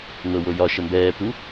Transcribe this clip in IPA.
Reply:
n̪ɤ wojɒ ʃəmbɛː pu

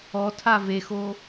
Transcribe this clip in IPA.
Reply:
ɔtʰa vexo

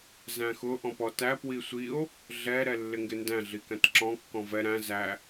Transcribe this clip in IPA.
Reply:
zæ̃xʊ ʔɔ̃pɔtæ pwisʷio̯ | ɮɛ ɾɛlːɪŋɡɪndæ̃ ɮikæ̃tǁɔ̃ kːɔ̃vɛ ɾæ̃ zæ

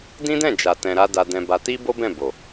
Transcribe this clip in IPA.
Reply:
dĩ˦dɛ̃˦˨d͡ʒa˨ tɛ̃˧ɾa˦ da˧dɛ̃˧ba˧ ti˦bo˦bɛ̃˦˨ bo˨

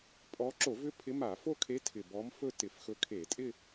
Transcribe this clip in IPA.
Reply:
pʼɔ˧˥ ǁo˧˩˧vʏ˧˥ pʰɪ˧˥ma˧˩˧ fo˥˧kʰe˧˥ tʰɪ˨˩ bɔ˧˥mfɵ˥˧ tɪ˧˩˧fxɵ˧˥kʰe˧˩˧ tʼɪ˥˧

